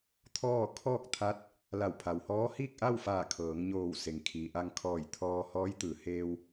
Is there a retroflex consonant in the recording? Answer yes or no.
no